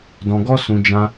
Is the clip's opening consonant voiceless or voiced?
voiced